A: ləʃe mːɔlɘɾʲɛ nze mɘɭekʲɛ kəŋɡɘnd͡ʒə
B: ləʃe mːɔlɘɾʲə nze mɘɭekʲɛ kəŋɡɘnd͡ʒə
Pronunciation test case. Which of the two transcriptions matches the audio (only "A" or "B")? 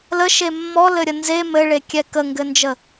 B